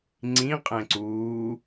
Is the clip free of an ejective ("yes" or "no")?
no